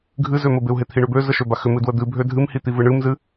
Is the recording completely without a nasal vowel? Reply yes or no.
yes